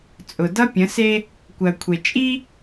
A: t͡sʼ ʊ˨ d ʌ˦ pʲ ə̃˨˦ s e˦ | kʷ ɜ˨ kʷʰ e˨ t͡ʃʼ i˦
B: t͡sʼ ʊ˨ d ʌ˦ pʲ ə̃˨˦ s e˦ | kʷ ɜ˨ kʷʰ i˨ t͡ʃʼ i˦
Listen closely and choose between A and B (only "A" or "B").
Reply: A